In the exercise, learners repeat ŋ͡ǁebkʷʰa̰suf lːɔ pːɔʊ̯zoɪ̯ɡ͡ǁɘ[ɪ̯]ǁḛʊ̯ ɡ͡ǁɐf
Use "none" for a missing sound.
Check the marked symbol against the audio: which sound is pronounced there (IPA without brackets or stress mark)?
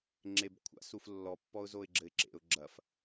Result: ɪ̯